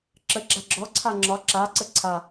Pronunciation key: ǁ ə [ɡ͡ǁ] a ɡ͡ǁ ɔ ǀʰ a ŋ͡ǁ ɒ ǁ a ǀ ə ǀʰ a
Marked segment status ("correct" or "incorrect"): correct